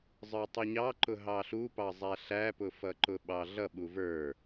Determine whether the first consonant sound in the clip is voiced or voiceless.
voiced